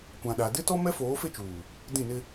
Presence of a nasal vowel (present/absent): present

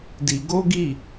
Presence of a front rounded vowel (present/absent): absent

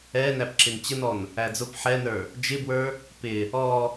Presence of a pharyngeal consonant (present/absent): present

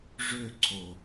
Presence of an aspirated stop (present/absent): present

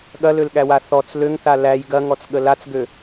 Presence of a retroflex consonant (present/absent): absent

